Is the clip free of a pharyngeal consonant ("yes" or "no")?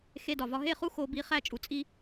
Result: yes